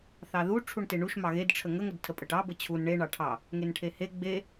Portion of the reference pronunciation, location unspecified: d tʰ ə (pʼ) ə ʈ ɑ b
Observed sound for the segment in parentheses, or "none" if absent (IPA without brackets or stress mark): pʼ